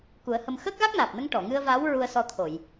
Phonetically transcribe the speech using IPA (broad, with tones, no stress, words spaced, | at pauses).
ku˨˩˦ə̯hə˧m xəː˦˥k̚ɣa˦˥k̚naː˨˩p̚nə˧ŋ ʈɔ˨˩˨ŋɨ˧ə̯vaː˧˥w ɹu˧ə̯ sɔ˧t̪ʰo˨˩˨j